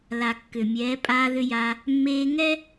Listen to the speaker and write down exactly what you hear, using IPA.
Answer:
la˩kːʏ˩mʲɛː˩˧ pʼaː˧ðʏ˧ja˧ | mːeː˧ŋɛ˥

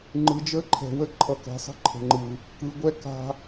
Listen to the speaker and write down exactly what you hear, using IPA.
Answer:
ŋ͡ǃɯ˨d͡ʒə˦ ǃʰɛ̤˨wə˦ ǃʰʌ˨kɛ̤˨sˤə̤˦ ǃʰə̤˨ŋ͡ǃɯ˨ | kɯ˨ɡʷɛ˦ ka̤˦

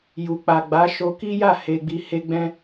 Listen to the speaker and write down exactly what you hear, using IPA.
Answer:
ju˨k͡pa˨ɡ͡ba˨˦ ʃo˧ki˦ja˦˨ he˧ɡ͡bi˧ he˧ɡ͡bɛ̃˧

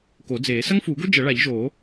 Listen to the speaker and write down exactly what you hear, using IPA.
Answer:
ko˨˩˦d͡zeː˨˩˦ sɐ˥ŋfuː˨˩˦ɡo˥ d͡ʒɐ˨˩˦ɭa˨˩˦ʎʒoː˨˩˦

